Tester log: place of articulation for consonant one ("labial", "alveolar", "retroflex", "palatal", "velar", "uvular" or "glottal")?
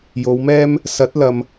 palatal